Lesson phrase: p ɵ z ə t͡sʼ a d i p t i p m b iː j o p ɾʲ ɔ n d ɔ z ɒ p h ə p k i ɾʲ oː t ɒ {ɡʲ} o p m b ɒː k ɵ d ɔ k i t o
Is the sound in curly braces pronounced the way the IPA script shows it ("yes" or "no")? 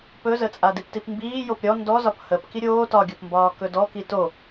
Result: yes